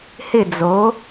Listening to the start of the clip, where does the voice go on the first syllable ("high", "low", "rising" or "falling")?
falling